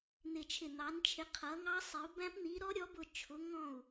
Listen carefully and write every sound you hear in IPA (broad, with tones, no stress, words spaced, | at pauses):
n̪ɪ˧˩t͡ʃʰɪ˧˩n̪ɑ˨˦nt͡ʃʰɪ˨˦ qʰʌ˨˦ŋɑ˦˥sˤɪ˨˦u̯ bæ̃˦˥pn̪i˨˦ ɾɔ˦˥ɾʲɔ˨˦bʊ˧˩ t͡ʃʰʊ˨˦ ŋɔ̃˧˩u̯